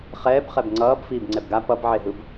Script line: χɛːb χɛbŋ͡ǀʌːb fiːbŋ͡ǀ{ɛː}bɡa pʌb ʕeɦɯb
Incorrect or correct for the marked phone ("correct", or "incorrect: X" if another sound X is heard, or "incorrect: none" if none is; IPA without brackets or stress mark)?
incorrect: ɛ